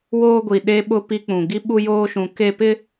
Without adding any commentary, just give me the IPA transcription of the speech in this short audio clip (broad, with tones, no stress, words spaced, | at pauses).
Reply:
woː˦ɡʷi˨ ɗe˦ɓʊ˦ pi˦k͡pũ˨ ɡi˦ɓu˦joː˦ʃũ˨˦ ke˦ pɪ˦